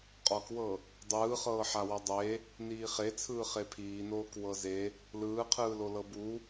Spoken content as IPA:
qʼ ɔ k w ɤ | dˤ ɯː χ ɤː ħ a w ɔ dˤ e | n iː χ e t͡sʰ ɯː χ e pʰ iː n oː k w ɤ z e | l ɯː qʰ ɯː l o l ɤ b u

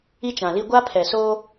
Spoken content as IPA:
i˦ t͡ʃ ã˨ l i˦ ɡʷ a˦ pʰ ɛ˨ s oː˦

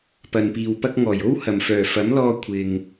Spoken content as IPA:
p ɐ˨ n p iː˨ w p ɐ˥ k̚ ŋ ɔː˨˩ j o˥ w h ɐ˨˩ m f œː˨˩ f ɐ˨˥ m l ɔː˧ kʷʰ ɪ˨ ŋ

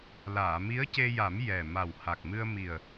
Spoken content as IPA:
l aː˨˩˨ m i˧˥ ə̯ c e˧ j a˨˩˦ m j ɛ˨˩ m a˨˩ w h a˨˩ k̚ m ɨ˧ ə̯ m i˨˩ ə̯

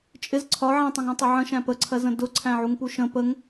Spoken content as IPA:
t͡ʃʼ ɪ z ǀʰ ɒ ʕ æ̃ tˤ ũ ŋ æ̃ tˤ ʌ ʕ ə̃ ʃ æ̃ p ə ǀʰ ɜ z ə̃ d ʊ ǀʰ æ̃ ʕ u ŋ p u ʃ ə̃ p ə ŋ

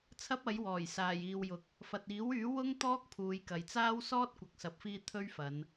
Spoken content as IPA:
t͡sʰ ɐ˥ p̚ ɐ˨˥ j w ɔː˨˩ j s aː˨˩ j iː˨ w j ʊ˨ k̚ | f ɐ˨ t̚ iː˨˥ w yː˨˥ w ʊ˥ ŋ t̪ ɔː˥ k̚ pʰ uː˨˧ j k ɐ˨ j t͡s aː˥ w s ɔː˥ t̚ kʷ ɐ˨ k̚ s ɐ˨˥ p̚ f iː˧ t̪ʰ ɵ˥ ɥ f ɐ˨˧ n

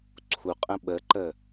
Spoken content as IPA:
ǀʰ u qʼ ə̃ ɓ ə ǃ ə

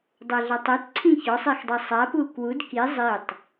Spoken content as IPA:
dˤ æ ɮ a tˤ e t ǀʰ ĩ ç ɔ sˤ i x dˤ a sˤ a p u k w u d k i zˤ i tˤ

